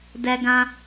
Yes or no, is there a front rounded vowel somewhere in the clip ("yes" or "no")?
no